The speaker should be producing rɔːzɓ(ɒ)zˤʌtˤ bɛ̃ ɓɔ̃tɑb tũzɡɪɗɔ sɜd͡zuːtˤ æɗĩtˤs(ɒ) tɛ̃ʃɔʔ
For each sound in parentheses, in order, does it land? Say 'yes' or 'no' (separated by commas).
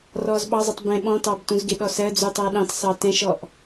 no, no